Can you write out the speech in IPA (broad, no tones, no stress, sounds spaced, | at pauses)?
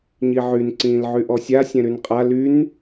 ɲ i ʕ y n ǀ ĩː l ʕ y ʔ ɔ sʲ a sʲ ɛ̃ ɾ y n qʼ a l y n